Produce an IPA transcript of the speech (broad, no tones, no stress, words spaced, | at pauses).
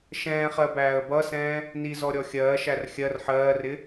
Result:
ʃɛ̃ːχɜbæːə̯ bʌsɛ̃ː | nizɔɾʲɔ xʲɜːʃær xʲɜr ħɜːrɪ